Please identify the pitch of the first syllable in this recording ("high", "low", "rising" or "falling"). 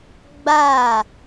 falling